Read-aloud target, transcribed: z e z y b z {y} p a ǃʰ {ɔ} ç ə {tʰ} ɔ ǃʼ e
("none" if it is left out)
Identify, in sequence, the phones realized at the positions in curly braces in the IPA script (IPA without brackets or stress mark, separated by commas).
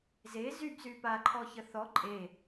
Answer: y, ɔ, θ